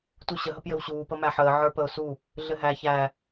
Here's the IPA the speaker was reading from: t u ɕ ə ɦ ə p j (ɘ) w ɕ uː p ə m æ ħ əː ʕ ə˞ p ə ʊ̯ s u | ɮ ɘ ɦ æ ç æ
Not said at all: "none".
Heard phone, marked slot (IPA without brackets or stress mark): ɘ